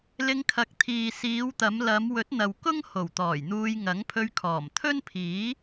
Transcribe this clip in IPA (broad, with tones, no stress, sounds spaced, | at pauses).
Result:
l ɪ˧ ŋ kʰ ɐ˨ k̚ t̪ʰ iː˨ s iː˨˧ w t̪ ɐ˨˧ m l ɐ˨˧ m w ɵ˨˥ t̚ n̪ ɐ˨ w k ʊ˥ ŋ h o˨˩ w t̪ ɔː˨˩ j n̪ uː˧ j ŋ ɐ˨˥ ŋ pʰ ɵ˧ ɥ kʰ ɔː˨˩ m t̪ʰ ɵ˥ n pʰ iː˨˥